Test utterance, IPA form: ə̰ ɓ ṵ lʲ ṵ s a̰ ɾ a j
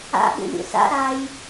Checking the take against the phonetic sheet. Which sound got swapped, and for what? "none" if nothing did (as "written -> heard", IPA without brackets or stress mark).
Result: ə̰ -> a̰